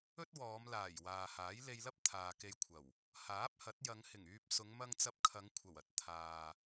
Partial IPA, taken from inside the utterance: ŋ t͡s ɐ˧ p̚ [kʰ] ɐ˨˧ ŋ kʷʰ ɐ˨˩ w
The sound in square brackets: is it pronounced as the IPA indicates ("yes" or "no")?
yes